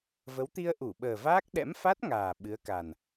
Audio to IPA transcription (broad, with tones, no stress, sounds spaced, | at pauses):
v ə˨˦ w t̪ i˧ ə̯ ʔ u˧˩ ɓ əː˨˩ v aː˦˥ k̚ ɗ ɛ̰˧˥ m f a˦˥ t̚ ŋ aː˨˩ ɓ ɨ˨˦ ə̯ k a˨˩ n